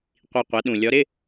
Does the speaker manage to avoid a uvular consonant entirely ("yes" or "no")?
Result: no